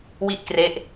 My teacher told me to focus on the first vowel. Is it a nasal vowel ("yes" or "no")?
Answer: no